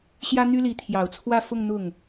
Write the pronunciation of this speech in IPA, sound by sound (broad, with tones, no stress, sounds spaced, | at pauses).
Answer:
ɕ j ä˥ n̪ y˥ l i˧˥ t̪ʰ j ɑ˨˩ ʊ̯ t͡sʰ w ä˥˧ f ʊ˥˧ ŋ n̪ ʊ˥˩ ŋ